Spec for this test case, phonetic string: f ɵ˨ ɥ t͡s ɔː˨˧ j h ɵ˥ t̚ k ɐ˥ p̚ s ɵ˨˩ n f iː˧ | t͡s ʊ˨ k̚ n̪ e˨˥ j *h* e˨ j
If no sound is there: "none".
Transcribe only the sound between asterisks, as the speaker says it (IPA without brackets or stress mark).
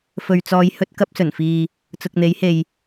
h